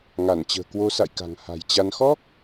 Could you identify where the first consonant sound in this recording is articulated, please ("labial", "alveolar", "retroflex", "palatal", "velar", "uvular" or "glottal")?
velar